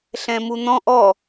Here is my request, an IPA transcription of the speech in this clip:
ɬɛ̃mun̪ɔ̃ʔ ɔ

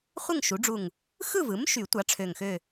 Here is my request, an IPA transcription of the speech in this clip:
χʷɯ˥˨ŋʃu˩˥ɖ͡ʐu˧˩ŋ | xɯ˥˨vɯ˩˥mʃy˨˩˦tʷɑ˩˥ ʈ͡ʂʰø˧˩ŋxø˥˨

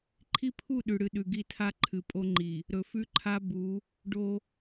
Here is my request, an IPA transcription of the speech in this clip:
ǃʰi˦pʰu˦˨ ɗʉ˨ɽɨ˨ɗʉ˨ɡi˦˨ tʰa˦ǃʰɨ˨pʼo˦ŋ͡ǃi˨ | ɾɵ˨fʉ˦ǃʰa˦ bu˨˦ | ɖo˦

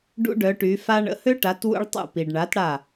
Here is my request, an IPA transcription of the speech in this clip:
ɖṵ˦ɖœ˩˧ʈy˩˧fa˦ ɳə̰˩˧hø˦ʈa˩˧t wṵ˦ɭtˤṵ˧˩pi˩ɖɳa˩˥t ɽa˧˩

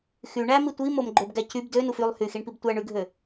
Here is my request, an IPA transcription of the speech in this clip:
xy ɳæmi tʷimomɡ͡ǃøbɡæ cyb dønuf ylˠ hyxiɳpib tʷæɳyɡʱø

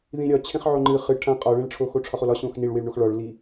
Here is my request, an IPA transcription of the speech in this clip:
ðĩɾʲɒ t͡ɕʰẽχʕoŋ͡ǃɨ χɨʈʰã qʼɒɭẽɭʈ͡ʂʰo xoʈ͡ʂʰɒχolɒ ɕõxniɭwiɭɳox ɭɒɭli

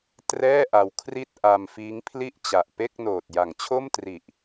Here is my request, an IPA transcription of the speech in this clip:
trɛː˥˩ʔa˧w kʰri˥˩t̚ ʔa˧mfiː˦˥ŋpʰli˥˩ʔ t͡ɕa˨˩ʔpe˥˩k̚noː˨˩t̚ ja˩˦ŋt͡ɕʰo˥˩mtri˨˩ʔ

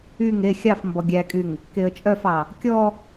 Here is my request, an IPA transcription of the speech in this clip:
yŋ e xʲɑf mbɔɡʲækʼyŋ | keə̯t͡ʃʼœfɑ | kʲɔ

